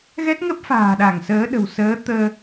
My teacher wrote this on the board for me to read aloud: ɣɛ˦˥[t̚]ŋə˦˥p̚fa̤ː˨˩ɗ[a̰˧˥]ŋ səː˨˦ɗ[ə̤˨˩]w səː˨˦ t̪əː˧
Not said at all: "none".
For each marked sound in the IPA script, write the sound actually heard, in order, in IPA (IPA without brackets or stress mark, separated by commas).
t̚, a˧˩, ə̤˨˩